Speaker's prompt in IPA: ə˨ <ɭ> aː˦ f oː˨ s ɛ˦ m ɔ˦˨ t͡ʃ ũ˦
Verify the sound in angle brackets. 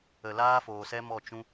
incorrect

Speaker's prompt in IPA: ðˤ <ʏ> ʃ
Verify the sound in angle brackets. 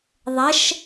incorrect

